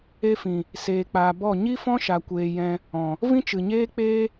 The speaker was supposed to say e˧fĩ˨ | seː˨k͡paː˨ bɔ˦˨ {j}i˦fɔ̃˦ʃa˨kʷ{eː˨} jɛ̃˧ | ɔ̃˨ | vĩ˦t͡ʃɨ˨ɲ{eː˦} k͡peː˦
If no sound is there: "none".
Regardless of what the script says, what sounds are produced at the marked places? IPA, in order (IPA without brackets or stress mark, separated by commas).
ɲ, eː˨, eː˦